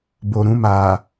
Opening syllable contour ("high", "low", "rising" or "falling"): low